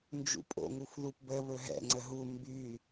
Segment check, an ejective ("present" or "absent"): present